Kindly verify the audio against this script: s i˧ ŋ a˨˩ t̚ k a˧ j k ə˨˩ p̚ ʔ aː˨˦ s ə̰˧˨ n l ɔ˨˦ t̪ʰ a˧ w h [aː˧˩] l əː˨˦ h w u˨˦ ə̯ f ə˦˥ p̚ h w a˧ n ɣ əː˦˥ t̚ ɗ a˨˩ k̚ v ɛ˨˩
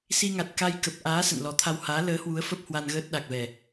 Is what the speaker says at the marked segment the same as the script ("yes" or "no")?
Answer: no